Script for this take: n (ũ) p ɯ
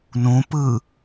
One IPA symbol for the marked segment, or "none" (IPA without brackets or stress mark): ũ